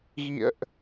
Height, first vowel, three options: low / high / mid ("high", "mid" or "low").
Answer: high